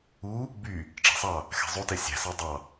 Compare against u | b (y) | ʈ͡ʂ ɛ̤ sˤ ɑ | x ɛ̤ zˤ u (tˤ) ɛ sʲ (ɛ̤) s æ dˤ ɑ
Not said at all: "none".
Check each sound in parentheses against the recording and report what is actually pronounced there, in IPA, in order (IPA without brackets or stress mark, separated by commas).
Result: y, t, æ̤